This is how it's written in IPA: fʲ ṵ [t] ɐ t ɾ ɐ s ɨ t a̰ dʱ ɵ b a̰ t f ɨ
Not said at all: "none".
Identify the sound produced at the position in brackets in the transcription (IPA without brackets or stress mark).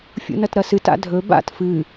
n